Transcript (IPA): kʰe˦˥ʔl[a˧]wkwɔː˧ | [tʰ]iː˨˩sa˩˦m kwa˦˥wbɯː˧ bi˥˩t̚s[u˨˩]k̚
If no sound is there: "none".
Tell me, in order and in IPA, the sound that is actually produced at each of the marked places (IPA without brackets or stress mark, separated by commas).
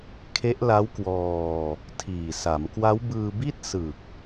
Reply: a˦˥, tʰ, ɯ˨˩